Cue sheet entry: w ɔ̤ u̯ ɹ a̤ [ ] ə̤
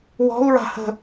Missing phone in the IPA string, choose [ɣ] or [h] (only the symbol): h